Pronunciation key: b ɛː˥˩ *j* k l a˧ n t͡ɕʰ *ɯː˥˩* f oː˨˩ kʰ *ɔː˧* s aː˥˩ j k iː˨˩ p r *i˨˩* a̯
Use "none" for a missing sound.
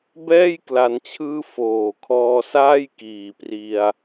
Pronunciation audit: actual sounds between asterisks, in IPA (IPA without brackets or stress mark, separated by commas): j, ɯː˥˩, ɔː˧, i˧